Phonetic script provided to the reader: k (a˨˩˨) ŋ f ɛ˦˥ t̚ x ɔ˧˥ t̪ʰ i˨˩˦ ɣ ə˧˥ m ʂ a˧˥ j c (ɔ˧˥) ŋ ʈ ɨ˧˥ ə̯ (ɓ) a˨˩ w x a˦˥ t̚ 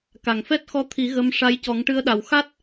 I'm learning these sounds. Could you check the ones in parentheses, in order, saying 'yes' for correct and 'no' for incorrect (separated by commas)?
yes, no, no